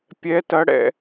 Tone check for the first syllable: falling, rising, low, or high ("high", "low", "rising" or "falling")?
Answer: rising